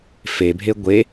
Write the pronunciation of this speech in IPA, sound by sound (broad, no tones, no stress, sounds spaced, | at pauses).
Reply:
f e bʱ e ɡʷ e